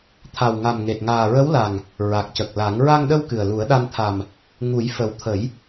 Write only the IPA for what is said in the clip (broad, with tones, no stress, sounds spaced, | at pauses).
t̪ʰ a˨˩ w ŋ a˨˩ m ŋ e˨˩ t̚ ŋ aː˨˩ ɹ ə˧˥ w l a˨˩ ŋ | ɹ a˨˩ k̚ c ə˨˩ k̚ l a˨˩˦ ŋ ɹ a˧ ŋ ɗ ə˧ w k ɨ˨˩ ə̯ l u˨˩˦ ə̯ ɗ a˧ n t̪ʰ a˨˩ m | ŋ u˨˩˦ j f ə˨˩ w t̪ʰ ə˨˩˦ j